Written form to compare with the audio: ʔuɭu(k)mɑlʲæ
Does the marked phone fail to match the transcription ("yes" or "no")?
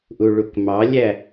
no